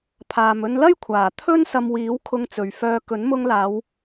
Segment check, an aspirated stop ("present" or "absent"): present